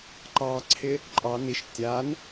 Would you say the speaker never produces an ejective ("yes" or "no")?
no